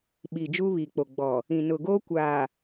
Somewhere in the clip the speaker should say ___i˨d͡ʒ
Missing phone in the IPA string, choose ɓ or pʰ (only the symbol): ɓ